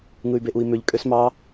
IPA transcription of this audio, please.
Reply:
ŋ ɯ y̯ b e ʔ u i̯ m ø ʎ kʼ ø s m ɑ

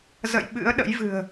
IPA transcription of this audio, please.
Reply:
z ə̰˧˨ j ɓ ɨ̰˧˥ ə̯ ɗ ə̰˧˥ j v ɨ̤˨˩ ə̯

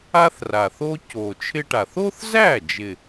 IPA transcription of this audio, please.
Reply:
a˥ θ r a˨˩ θ o˥ c o˨˩ t͡ʃʰ ɪ˥ ʈ a˨˩ θ o˥ θ z æ˥˩ d͡ʒ ɪ˨˩

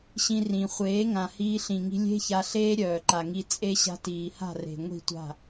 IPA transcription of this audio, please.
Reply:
ɕ ĩ˧ r ĩ˨ χʷ eː˨˦ ŋ ã˨ h iː˧ ɬ ĩ˨ ŋ i̤˧ lʲ e̤˦ ç a˧ ɬ eː˦ ɾʲ œː˨ ǃ a˨ ŋ i˧ t͡sʼ e˧ ɕ a̤˧ t iː˨ h a̤˦˨ r e̤˨ ŋʷ i̤˦˨ tʷ a̤˦˨

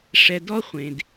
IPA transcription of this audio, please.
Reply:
ʂ ɛ˨ d ɔ˦ χʷ ẽ˨ d

